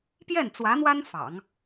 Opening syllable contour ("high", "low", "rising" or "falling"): falling